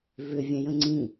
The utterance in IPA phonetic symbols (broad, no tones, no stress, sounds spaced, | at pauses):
v ʏ vʲ ɛ̃ j ə̃ ŋ͡ǀ ĩ